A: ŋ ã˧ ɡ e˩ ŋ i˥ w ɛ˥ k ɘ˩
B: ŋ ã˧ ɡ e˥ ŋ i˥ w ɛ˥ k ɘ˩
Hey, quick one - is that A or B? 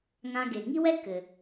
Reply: A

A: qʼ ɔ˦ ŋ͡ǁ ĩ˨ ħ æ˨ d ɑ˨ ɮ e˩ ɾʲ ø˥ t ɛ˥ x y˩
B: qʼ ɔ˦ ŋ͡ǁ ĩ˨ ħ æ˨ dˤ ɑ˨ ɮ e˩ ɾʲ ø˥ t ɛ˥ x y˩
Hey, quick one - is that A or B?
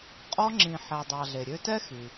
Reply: B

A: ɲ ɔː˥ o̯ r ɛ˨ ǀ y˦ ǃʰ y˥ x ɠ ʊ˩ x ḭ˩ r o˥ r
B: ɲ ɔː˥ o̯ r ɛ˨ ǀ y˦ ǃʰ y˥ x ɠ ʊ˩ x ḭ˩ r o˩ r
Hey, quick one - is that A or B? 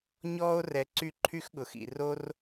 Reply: A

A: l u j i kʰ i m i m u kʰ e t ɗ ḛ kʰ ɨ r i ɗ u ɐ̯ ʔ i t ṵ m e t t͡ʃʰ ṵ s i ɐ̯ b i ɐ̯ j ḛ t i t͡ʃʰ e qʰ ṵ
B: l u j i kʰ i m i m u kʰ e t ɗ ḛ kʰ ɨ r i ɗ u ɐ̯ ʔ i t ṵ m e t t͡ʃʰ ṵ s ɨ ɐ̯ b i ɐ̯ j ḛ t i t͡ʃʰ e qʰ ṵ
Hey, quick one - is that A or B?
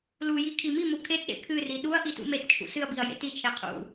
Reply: B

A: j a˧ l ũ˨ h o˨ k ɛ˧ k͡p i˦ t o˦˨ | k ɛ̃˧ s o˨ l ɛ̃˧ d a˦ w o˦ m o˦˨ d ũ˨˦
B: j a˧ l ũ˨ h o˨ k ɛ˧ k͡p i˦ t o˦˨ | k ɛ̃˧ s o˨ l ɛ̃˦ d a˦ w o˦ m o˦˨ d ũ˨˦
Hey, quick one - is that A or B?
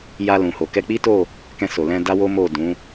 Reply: A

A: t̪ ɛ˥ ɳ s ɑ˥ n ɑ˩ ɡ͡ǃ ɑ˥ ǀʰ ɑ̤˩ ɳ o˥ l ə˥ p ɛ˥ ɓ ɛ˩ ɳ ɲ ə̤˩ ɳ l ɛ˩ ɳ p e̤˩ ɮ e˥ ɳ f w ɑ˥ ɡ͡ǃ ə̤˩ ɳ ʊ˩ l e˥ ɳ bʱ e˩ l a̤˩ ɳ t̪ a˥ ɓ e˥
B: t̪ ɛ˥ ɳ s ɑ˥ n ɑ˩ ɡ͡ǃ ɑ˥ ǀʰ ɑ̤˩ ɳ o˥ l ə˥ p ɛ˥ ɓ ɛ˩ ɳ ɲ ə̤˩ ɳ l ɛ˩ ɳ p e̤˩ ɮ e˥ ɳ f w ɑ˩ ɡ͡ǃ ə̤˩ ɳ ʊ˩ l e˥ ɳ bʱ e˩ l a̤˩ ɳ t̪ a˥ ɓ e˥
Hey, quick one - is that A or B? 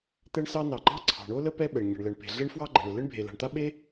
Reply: A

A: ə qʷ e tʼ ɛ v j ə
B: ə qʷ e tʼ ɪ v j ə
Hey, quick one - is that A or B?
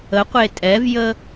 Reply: A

